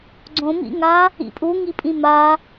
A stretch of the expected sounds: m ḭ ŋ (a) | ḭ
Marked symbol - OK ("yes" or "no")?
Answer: yes